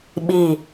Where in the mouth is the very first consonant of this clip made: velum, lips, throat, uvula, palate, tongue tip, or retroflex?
lips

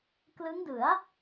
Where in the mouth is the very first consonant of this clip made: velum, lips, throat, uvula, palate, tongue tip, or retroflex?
velum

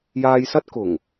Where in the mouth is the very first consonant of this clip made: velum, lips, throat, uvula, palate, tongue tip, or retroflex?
palate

